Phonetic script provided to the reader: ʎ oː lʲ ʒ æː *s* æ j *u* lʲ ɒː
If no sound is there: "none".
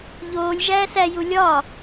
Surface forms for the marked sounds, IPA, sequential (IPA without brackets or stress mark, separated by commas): s, u